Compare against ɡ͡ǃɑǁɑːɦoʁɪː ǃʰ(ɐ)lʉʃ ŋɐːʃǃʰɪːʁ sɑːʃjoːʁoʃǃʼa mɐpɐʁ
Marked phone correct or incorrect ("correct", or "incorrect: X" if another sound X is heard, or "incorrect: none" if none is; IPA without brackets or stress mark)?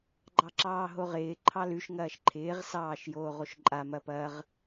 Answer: incorrect: ɑ